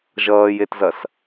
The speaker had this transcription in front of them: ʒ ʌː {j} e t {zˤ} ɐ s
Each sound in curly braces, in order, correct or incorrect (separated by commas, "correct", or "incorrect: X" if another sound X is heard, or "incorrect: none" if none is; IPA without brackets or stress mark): correct, incorrect: z